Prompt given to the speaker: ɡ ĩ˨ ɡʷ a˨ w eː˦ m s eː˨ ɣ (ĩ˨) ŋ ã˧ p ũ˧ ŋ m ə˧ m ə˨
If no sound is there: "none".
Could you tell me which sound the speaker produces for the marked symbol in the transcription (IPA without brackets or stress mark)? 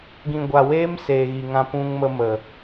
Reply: i˨